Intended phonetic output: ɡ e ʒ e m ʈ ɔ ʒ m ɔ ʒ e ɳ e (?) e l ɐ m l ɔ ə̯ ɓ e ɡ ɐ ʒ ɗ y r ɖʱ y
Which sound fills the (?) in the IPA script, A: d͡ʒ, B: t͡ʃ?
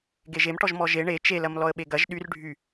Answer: B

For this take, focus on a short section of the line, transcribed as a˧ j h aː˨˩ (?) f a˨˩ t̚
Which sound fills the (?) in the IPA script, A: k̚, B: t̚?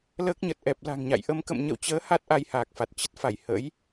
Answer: A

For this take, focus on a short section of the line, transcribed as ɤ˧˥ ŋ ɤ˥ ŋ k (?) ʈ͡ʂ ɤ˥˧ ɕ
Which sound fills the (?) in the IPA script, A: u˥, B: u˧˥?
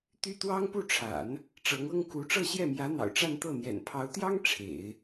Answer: B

